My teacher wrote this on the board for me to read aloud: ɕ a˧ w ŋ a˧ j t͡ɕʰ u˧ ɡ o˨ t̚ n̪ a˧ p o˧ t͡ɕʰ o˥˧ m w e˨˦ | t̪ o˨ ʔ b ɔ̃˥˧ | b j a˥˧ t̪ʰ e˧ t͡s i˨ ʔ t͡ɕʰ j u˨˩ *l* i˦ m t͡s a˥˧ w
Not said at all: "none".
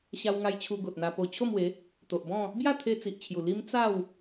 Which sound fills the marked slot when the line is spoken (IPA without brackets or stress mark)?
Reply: l